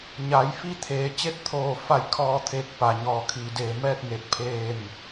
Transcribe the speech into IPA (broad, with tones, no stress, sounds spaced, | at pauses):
ɲ a˩˧ j f i˥˨ t̪ʰ eː˩˧ t͡ɕ e˧˥ t̚ t̪ʰ oː˧˩ f a˧˩ j kʰ ɔː˧ t̪ʰ eː˧ k̚ p a˩ ɲ ɔː˧˩ kʰ iː˩ d eː˧˩ m ɛː˥˨ t̚ ŋ e˧˩ t̚ pʰ eː˥˨ m